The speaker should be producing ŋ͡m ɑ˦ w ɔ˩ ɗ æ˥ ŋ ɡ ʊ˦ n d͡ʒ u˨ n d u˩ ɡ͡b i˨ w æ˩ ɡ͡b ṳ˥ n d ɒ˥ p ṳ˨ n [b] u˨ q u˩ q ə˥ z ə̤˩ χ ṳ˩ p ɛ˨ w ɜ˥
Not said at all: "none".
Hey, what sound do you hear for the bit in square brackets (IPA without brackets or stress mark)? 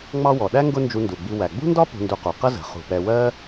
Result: d